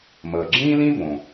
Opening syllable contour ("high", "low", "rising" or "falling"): low